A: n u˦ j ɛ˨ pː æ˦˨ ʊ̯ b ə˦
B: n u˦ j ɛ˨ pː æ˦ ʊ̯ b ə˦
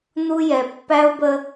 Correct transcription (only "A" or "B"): B